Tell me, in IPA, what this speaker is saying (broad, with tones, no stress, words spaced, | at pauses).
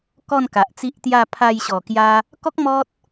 kɔ˥˧nka˨ʔt͡si˦ʔt̪ja˥˧ pʰa˧jɕɔ˨˩kja˧ | kɔ˦k̚ mɔ˦t̚